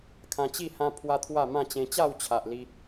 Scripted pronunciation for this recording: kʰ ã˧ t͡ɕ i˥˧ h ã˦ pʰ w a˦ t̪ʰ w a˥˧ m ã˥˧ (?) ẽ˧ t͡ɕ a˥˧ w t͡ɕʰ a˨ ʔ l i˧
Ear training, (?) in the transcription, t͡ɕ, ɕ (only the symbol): t͡ɕ